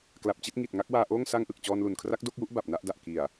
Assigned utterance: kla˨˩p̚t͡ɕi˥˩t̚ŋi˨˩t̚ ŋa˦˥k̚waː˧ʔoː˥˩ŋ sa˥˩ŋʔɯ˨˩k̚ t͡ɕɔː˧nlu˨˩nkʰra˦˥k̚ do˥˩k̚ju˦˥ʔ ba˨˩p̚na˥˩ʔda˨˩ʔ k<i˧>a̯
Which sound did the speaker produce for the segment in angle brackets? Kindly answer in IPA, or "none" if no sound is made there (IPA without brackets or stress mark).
i˨˩